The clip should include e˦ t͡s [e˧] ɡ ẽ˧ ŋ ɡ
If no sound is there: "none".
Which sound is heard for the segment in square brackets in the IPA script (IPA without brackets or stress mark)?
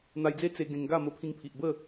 e˧